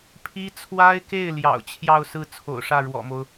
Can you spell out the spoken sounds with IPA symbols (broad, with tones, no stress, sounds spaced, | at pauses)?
pʰ i˥ t͡sʰ w a˥ ɪ̯ k e˥˩ ɪ̯ l j ɑ̰˨˩ ʊ̯ t͡ɕʰ j ɑ˥˧ ʊ̯ s ɹ̩˥˩ t͡sʰ o̰˨˩ ʊ̯ ʂ ä˥˩ ɻ w ɔ̰˨˩ m o˦ ʊ̯